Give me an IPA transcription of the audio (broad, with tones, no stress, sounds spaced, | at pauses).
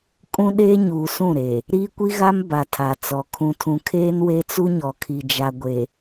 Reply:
kʼ ũ˦ ɗ eː˦ ɲ uː˨ s ũ˦˨ ɾ e˨ | ɾ iː˦ kʷ i˦ ɣ a˦ m b a˨ tʰ a˨ t͡s ɔ˨ kʰ ũ˨ tʰ ũ˨ kʰ eː˦ n w e˦ t͡s u˦ ɲ ɔ˨ kʰ i˨ d͡ʒ a˨ ɡʷ e˨